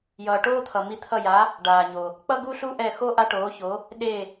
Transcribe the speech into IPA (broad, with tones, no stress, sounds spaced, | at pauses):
j ʌː˨ ʈ oː˥ t̪ʰ ʌ˨ m i˧˥ t̪ʰ ʌ˦˨ j a˧˥ | ɖ aː˨ ɲ o˨ | k͡p ʌ˥ ɡ u˥ ɬ u˥ ʔ ɛ˦˨ x o˥ ʔ a˥ ʈ oː˧˥ ç o˧˥ | ɗ e˦˨